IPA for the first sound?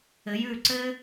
ɘ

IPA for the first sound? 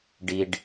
ɖ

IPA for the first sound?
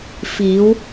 f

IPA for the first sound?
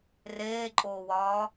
r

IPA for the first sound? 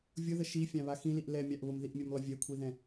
vʲ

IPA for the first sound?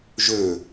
ʒ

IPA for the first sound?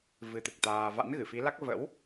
v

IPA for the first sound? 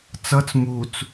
t͡s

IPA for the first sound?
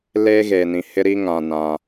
l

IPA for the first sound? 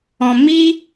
ɔ̃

